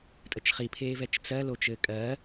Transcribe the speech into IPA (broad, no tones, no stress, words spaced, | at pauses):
tʼət͡ʃχipʰeːv ɛt͡ʃt͡sɜlo t͡ʃɘːkʼɜ